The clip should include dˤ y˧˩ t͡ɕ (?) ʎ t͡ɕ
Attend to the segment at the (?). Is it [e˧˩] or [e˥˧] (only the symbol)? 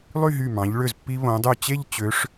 e˥˧